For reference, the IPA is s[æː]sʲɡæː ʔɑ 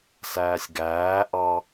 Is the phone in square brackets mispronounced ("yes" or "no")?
no